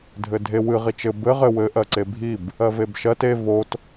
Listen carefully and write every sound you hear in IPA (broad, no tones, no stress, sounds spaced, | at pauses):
dʱ ɘ dʱ e w ɨ ʁ i t͡ʃ ɘ b ɘ ʁ ɘ w ɘ ʔ ɜ ǀ e bʱ i b | ɜ v e b ʃ ɜ t e v o t